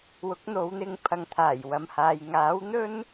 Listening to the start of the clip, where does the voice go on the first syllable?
rising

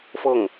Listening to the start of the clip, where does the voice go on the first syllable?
falling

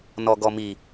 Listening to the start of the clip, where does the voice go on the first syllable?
low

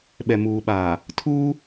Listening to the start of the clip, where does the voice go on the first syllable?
low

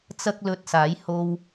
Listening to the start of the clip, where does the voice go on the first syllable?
high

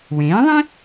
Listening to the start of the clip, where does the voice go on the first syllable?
rising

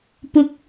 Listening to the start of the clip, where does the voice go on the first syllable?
high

